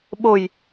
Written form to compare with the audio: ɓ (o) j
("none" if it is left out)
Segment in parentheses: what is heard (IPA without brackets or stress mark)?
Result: o